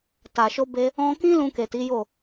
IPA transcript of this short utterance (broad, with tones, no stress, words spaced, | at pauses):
ta˨ʃo˧be˧ | ɔ̃˧kĩ˦ lũ˧ke˨ti˨˦jo˦˨